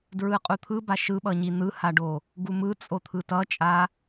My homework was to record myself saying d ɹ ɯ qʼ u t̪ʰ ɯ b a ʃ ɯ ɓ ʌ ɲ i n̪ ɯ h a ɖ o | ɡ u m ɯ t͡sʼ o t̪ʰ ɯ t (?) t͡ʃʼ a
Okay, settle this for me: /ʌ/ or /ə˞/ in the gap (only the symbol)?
ʌ